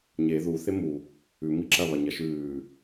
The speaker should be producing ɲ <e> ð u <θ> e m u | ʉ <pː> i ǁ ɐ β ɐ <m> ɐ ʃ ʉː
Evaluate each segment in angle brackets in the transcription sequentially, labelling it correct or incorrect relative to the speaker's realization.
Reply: correct, correct, incorrect, incorrect

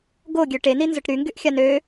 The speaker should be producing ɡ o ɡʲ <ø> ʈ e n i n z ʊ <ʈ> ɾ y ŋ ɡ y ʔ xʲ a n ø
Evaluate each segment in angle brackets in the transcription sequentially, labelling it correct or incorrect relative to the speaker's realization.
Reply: correct, correct

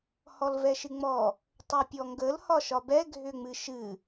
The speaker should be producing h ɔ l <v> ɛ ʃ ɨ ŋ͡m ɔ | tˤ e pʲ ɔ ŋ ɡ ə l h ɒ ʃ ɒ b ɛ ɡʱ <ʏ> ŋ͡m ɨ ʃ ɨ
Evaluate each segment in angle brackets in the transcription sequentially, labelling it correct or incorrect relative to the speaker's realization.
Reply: correct, correct

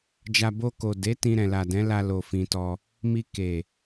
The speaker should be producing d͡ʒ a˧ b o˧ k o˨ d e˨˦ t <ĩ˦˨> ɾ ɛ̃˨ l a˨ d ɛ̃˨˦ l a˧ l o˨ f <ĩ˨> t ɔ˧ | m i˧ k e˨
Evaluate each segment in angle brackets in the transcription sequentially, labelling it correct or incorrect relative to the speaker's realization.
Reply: incorrect, correct

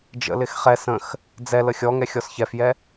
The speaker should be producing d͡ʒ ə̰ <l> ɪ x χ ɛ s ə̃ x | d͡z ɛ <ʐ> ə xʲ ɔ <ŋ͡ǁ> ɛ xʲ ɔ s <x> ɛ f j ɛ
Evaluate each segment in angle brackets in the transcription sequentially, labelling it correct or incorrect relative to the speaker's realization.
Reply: correct, incorrect, incorrect, incorrect

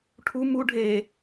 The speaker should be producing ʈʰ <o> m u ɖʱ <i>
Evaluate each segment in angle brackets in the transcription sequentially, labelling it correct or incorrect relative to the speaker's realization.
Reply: incorrect, incorrect

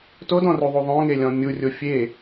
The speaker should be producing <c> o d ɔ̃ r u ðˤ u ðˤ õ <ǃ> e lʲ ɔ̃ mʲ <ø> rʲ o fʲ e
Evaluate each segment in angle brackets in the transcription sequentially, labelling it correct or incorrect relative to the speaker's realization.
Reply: incorrect, incorrect, incorrect

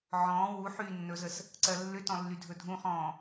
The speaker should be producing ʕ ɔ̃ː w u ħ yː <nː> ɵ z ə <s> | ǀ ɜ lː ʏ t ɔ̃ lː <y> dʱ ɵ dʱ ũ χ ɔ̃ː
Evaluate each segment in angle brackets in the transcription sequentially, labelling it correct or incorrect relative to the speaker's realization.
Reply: correct, correct, correct

